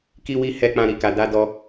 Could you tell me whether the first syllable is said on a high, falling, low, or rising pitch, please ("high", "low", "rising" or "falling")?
high